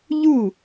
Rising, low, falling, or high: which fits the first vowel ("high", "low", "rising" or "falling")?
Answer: falling